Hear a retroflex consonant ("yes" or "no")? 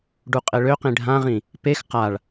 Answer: yes